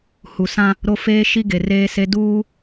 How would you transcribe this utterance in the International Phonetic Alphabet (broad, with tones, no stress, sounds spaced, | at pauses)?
h u˨ s ã˦ | ɾ o˦ f eː˦ ʃ i˦ ɡ e˨ r eː˦ s e˦ d uː˦